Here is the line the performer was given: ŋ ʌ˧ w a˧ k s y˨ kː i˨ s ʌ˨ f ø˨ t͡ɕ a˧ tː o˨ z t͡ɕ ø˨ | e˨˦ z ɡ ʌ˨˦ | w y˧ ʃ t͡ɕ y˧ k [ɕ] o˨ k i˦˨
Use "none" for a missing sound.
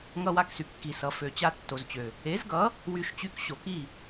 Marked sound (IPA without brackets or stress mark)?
ɕ